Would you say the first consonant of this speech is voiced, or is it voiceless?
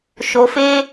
voiceless